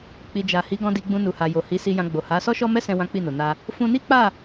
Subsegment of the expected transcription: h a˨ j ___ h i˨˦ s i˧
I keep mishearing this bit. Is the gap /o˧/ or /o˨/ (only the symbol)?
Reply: o˨